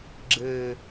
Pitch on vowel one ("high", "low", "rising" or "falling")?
low